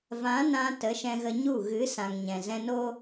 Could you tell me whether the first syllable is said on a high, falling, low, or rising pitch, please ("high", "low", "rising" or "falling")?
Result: rising